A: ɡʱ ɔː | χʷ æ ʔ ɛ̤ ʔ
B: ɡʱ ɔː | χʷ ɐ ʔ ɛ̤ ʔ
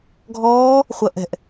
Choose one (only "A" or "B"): B